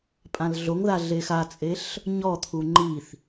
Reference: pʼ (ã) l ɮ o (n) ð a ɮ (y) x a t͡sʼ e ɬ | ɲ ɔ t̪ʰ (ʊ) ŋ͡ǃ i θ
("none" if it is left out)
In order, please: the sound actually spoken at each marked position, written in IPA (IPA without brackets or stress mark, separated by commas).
ã, ŋ, e, u